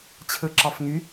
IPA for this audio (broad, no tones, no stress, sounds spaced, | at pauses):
t͡ɕʰ ɯ ǁ ɑ f ŋ y